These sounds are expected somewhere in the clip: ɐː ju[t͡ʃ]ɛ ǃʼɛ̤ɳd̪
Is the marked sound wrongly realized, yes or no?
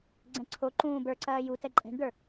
yes